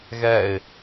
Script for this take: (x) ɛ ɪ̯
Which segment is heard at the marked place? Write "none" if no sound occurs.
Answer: ɣ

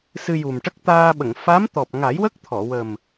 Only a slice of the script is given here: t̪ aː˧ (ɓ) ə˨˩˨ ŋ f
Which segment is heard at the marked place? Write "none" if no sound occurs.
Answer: ɓ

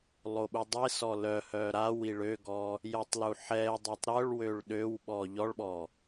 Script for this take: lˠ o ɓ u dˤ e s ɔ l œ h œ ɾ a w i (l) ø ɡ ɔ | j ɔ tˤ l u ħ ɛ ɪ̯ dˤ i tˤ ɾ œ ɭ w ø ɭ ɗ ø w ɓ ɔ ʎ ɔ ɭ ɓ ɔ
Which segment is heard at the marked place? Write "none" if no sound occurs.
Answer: ɭ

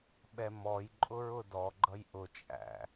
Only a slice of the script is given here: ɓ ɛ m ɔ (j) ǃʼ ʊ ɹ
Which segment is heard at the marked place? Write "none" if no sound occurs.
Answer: j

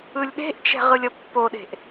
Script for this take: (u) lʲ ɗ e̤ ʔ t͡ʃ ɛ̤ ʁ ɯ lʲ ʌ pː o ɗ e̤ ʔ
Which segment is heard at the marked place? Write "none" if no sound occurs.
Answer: ɯ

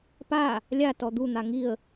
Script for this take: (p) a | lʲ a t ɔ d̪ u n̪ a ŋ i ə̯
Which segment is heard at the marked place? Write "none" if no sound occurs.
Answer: p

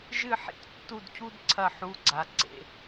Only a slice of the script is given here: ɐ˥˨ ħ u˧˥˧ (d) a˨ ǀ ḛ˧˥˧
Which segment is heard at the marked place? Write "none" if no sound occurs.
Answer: ɡ͡ǀ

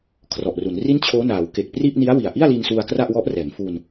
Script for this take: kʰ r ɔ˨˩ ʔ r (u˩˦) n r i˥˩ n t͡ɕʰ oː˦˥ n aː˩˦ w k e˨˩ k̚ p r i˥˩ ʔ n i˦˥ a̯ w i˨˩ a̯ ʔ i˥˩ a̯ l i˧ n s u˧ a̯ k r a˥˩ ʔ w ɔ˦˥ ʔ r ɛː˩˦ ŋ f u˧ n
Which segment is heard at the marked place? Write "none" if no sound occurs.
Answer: u˩˦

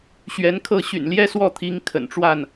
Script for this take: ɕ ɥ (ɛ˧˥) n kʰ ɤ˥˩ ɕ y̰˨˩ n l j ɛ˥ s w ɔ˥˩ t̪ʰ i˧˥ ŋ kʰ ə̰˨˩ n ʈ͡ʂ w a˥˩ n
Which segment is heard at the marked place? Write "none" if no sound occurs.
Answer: ɛ˧˥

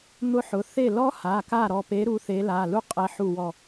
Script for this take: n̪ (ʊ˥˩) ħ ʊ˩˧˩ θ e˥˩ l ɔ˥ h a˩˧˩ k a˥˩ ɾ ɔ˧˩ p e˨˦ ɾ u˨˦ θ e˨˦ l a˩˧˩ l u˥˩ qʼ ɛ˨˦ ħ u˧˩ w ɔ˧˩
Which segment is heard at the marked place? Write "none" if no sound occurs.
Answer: ʊ˥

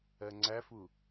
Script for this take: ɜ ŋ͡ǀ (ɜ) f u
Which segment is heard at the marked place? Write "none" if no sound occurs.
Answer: æ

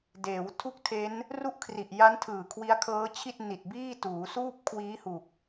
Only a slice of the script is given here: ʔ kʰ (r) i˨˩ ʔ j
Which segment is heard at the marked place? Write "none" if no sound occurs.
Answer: r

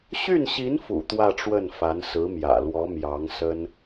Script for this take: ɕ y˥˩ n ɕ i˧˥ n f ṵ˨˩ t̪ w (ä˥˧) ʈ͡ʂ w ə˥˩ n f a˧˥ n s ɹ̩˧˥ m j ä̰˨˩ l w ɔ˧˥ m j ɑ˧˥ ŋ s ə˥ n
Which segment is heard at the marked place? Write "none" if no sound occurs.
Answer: ä˥˧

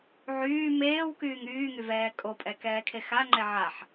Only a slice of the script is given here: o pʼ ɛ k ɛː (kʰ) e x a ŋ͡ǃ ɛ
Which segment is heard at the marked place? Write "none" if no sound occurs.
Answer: kʰ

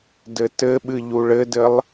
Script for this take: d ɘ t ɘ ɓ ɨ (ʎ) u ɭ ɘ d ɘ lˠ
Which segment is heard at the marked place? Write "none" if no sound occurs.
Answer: ʎ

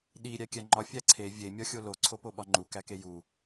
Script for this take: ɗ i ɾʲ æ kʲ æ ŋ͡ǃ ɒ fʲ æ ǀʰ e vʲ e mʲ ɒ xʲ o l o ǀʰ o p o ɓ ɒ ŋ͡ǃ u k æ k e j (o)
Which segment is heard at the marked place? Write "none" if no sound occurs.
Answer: u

